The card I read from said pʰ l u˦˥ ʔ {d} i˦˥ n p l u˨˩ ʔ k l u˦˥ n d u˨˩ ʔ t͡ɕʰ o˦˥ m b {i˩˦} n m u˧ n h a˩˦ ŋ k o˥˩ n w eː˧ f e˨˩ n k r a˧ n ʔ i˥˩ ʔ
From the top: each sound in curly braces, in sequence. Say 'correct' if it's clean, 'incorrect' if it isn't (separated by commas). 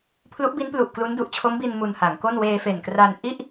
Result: incorrect, incorrect